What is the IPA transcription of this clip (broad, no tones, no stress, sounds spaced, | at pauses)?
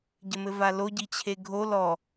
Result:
ɟ ɘ m ɘ v a l o ɟ i t͡ɕʰ e ɡʱ o l ɔ